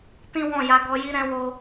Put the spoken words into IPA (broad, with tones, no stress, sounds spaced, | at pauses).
t ĩ˦ w ɔ̃˦˨ j a˧ ɡ ɔ˧ j i˦ ɾ ɛ̃˧ w o˧